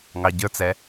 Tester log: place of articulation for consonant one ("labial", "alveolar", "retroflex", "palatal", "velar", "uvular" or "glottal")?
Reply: velar